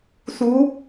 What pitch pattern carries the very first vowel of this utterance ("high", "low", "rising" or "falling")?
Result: rising